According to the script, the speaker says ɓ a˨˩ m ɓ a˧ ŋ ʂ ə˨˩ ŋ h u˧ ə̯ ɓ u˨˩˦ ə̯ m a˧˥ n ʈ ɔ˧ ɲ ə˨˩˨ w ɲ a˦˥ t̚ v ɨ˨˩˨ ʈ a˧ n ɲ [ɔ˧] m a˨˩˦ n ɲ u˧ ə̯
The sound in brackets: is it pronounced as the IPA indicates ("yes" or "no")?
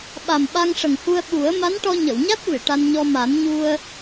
yes